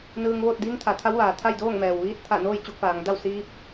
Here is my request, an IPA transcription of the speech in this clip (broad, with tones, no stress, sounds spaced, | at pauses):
n ɯː˧ ŋ ʋ oː˥˨ t̚ d iː˧˥ ŋ t̪ʰ a˩˧ t̪ʰ a˧˥ w ʋ aː˩ t̪ʰ a˥˨ j d oː˥˨ ŋ m ɛː˩ w ʋ iː˧ t̚ t̪ʰ a˧˩ n oː˥˨ j t͡ɕ u˧ k̚ f aː˩˧ ŋ d a˥˨ w s iː˧˥ p̚